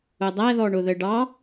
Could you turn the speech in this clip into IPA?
ʊ dˤ æ ð ɔ ɳ ʊ ð ə ɖ ɑ

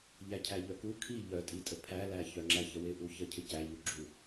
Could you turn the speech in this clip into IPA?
ʎ æ cʰ æ ʎ œ k u kʰ i ʎ œ tʼ i tʼ ə pʰ æ l æ ç œ ŋ͡ǁ æ ç ə w ɪ ʔ u ç ə cʰ ɪ c æ ʎ u ɡ͡ǁ u

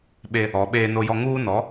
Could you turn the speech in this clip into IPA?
ɓ e˦ | ɔ˨˦ ɓ eː˦ n o˦ j ɔ˦ ŋ uː˦ n ɔ˨˦

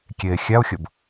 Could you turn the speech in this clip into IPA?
kʲ e xʲ æ ʊ̯ xʲ ə b

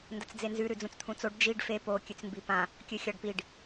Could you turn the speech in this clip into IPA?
n d ɐ t͡s d͡z e n z ʉ ɾ ʉ d͡z ũ t͡s t̪ʰ ũ t͡s o ɖ d͡ʒ i ɖ f e p o kʲ ʉ t͡s m b i p ã | kʲ ɨ xʲ a ɖ p i ɖ

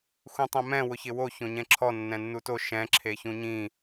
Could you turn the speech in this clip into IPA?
x ũ tˤ ɛ̃ m ɛ̃ w ʊ ç ɪ w o ç õ ɲ ɛ̃ ǁʰ ɔ nː ɛ̃ nː u t o ʃ ɛ̃ ǁʰ e ç ũ ɲ ĩ

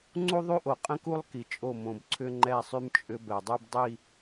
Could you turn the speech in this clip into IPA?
ŋ͡ǀ u˦ ðˤ y˦ ʔ o˨ qʼ ə̃˦ k u˦ lˠ k i˨ t͡ʃʼ o˦˨ m õ˨ b ǀʰ ʏ˦ ŋ͡ǃ ɛ˦˨ sˤ y˦ m t͡ʃʼ ʏ˦ b ɛ˨ dˤ y˦ b dˤ i˦˨

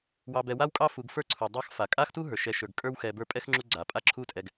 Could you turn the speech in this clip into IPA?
w ɑ˨ b ɛ˨ w a˦ w kʼ ɑ˦ f u˨ ɡ f ə˞˥ ǀʰ u˩ dˤ ɑ˦ x f a˩ kʼ a˥ x t u˥ ɦ ə˞˩ ʃ ɛ˨ ʃ ə˞˩ ɡ kʼ ə˞˦ w x ɛ˨ b ə˞˦ pʼ ɛ˥ x ŋ͡ǁ u˦ ɡ͡ǀ a˩ pʼ a˦ ǁʰ u˦ tʼ ɛ˨ ɡ

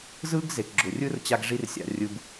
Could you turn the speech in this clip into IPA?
z ɯː˦ ɡ z e˨ k ɡ͡ǁ ʊ˨ rʲ ɯ˦ r t͡ɕ a˧ ɡ ʐ i˧ r sʲ a̰˨ rʲ ɯ˨ b

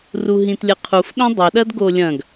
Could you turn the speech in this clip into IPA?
r u ɦ ĩ t lʲ ɐ qʰ u f ɗ õ dˤ ɵ ɗ ɐ d ɡ o lʲ ɐ̃ ɡ

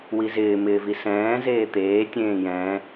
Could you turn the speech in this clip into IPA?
w i z ɪː m ɪː v i s ɛ̃ː z eː t̪ eː tʲ ẽː j ɛ̃ː

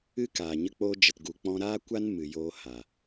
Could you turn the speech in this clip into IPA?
ɨ˦ k aː˨ ɲ ə˧ k͡p oː˧ d͡ʒ ə˨ t ɡ u˨ k͡p ɔ̃˧ ɾ aː˦ kʷ a˦ n m ɨ˨ j oː˧ h a˨

